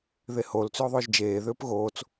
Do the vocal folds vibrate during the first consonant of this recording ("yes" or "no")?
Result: yes